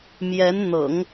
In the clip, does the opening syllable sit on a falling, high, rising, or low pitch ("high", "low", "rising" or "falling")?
rising